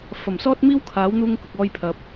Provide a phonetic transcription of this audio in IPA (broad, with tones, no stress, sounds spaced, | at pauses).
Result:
f ɐ˨˩ m s ɔː˥ t̚ m iː˥ w kʰ aː˨˥ w n̪ uː˥ ŋ k ʊ˨˥ k̚ ɔː˥ j pʰ ɐ˧ p̚